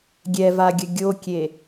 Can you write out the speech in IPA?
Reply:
ɡʲɛvaɡʲə ɡʲokʲe

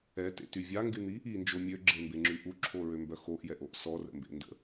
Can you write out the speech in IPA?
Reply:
ɛtḛty vʲaŋɡyn̪i | ind͡ʒo mʲøɡ͡ǁembeŋ͡ǁy ʔuǁʰoɹømbœ xoʔjɛʔoʔ sɔrə̰mbḛndə̰

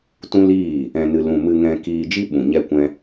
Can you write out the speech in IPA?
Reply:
tũ˦liː˦˨ | ɛ̃˧nɨ˧ lũ˧ mɨ˧ŋɛ̃˧kiː˧ d͡ʒi˦ɓũ˨ ɲɛ˦kʷɛ̃˦

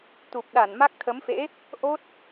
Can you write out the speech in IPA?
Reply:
t̪u˨˩p̚ ɗa˧˩nma˦˥k̚t̪ʰə˨˦mfḛ˧˥ | ʔo˦˥t̚

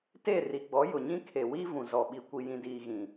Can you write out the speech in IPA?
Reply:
teː˦˨ri˨ɡ͡bɔ˨˦ jʊ˨ɲĩ˦kʰe˨wiː˦ vũ˨zɔ˨ɓi˨ kʷi˨jĩ˨diː˨ ɣĩ˨

